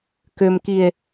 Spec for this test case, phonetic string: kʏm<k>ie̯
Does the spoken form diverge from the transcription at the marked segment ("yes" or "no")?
no